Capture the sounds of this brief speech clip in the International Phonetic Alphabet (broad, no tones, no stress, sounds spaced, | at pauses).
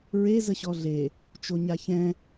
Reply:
ɹ e z ə ɕ ɔ ɮ e | t͡ʃ o ɲ a ç ɛ̃